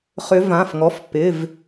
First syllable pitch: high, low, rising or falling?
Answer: rising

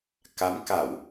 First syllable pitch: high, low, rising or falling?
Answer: rising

